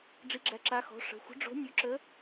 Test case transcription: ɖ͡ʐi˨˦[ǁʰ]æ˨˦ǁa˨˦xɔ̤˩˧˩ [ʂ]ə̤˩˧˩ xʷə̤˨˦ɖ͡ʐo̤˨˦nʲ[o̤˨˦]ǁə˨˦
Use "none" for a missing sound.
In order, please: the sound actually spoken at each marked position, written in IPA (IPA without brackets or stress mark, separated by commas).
ɡ͡ǁ, ʂ, o˨˦